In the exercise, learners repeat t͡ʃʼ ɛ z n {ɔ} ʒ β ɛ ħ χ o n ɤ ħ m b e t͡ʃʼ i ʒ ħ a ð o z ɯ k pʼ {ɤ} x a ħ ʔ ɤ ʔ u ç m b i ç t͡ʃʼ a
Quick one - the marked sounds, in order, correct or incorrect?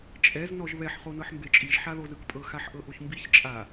correct, correct

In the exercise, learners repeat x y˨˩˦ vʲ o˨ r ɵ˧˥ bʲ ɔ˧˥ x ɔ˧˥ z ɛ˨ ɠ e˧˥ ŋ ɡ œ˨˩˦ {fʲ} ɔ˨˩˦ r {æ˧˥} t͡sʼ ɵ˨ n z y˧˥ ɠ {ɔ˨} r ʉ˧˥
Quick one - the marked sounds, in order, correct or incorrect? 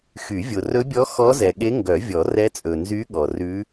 incorrect: vʲ, incorrect: ɛ˧˥, correct

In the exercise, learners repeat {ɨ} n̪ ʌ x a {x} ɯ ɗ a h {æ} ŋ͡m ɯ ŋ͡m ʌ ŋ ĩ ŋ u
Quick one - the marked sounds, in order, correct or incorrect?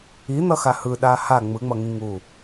incorrect: i, incorrect: h, incorrect: a

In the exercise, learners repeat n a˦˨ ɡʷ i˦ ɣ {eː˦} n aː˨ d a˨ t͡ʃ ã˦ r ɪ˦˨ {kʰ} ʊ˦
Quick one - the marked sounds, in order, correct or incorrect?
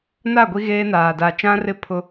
correct, incorrect: pʰ

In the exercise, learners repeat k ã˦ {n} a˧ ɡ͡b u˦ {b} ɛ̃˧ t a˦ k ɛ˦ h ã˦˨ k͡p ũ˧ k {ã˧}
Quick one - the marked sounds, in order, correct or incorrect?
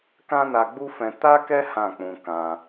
correct, incorrect: f, correct

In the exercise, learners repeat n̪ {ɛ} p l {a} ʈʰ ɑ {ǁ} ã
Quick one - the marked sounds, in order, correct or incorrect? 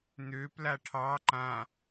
incorrect: ø, correct, incorrect: ǃ

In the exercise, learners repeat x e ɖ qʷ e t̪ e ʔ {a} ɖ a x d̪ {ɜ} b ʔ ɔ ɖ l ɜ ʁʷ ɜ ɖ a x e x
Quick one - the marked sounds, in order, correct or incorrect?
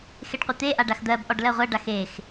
correct, correct

